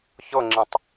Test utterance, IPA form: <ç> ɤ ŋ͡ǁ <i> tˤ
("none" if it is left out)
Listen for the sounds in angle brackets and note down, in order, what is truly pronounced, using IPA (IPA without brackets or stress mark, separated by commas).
ç, ĩ